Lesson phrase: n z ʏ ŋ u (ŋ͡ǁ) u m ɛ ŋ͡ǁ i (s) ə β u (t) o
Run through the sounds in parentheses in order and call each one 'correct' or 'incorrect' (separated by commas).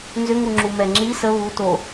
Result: correct, correct, correct